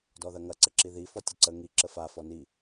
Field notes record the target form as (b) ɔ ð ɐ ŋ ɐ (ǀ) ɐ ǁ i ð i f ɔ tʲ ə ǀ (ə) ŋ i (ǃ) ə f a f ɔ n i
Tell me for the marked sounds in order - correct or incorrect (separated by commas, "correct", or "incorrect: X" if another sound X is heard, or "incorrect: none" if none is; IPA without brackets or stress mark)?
incorrect: d, correct, correct, incorrect: ǁ